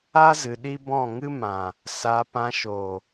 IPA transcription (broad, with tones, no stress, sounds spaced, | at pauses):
a˦ z ɨ˧ ɗ i˦ b ɔ̃˦˨ ŋ ɨ˦ m ã˨ | s a˧ p ã˧ ʃ o˨